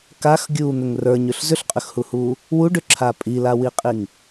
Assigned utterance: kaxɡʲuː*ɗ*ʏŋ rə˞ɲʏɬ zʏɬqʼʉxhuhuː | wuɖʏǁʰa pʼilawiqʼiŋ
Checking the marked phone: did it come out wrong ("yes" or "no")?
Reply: yes